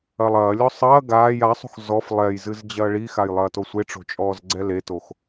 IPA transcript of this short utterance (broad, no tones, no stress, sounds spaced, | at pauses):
ɐ lˠ ɐː lʲ ɔ sˤ ɐː ɡ aː j a sˤ ṳ x z ɔ f lˠ ɛ j z ɨ z d͡ʑ ɐː ɭ i x a j lˠ ɐː t o sʷ e ʈ͡ʂ o̤ t͡ʃʼ ɔː z ɡ͡ǀ ɛ l e t o x